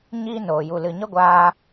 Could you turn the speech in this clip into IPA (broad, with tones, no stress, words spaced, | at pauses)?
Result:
ɲiː˦noː˨ju˨ lɨ˨ɲə˦ɡʷaː˧